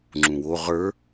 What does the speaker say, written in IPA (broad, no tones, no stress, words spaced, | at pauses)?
ŋ͡ǁũwo ʁə˞